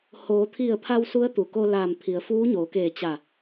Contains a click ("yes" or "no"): no